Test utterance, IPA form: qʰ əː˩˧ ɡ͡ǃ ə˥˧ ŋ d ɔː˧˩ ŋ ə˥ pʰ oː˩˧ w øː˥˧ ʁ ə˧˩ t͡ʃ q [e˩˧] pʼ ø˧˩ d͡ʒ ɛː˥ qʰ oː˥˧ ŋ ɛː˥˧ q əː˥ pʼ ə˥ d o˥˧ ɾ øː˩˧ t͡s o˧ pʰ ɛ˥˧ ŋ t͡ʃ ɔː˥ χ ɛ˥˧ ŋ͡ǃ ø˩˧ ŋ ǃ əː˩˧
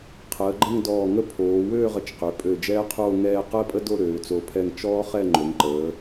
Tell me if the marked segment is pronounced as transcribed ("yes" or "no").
no